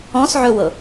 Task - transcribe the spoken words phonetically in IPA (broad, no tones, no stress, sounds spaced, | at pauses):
ɔ̃ s ʕ ɵ w ɤ